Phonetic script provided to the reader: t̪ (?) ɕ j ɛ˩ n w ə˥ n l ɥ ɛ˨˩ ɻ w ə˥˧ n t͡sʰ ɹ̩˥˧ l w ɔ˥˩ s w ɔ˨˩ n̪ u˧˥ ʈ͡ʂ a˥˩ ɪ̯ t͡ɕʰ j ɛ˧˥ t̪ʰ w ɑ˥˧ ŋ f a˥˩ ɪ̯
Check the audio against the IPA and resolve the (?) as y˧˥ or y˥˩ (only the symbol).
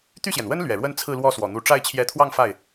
y˥˩